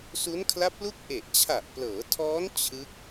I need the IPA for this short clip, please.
s u˦˥ n kʰ l a˦˥ p̚ l u˥˩ k̚ ʔ e˨˩ ʔ t͡ɕʰ a˨˩ ʔ p l ɤː˩˦ tʰ ɔː˦˥ n t͡ɕʰ ɯ˦˥ k̚

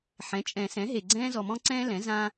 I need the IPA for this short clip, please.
ħ ɛ̃˩˥ t͡ʃʼ ɛ̃˨˩˦ s ɛ̃˩˥ ɦ e˨ ɡ͡ǀ ɛ̃ː˦ z ɔ˨ m ɔ̃˦ ǀ ɛ̃ː˦ l ɛ̃˩˥ z ã˦

